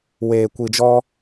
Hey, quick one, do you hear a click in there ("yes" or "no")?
no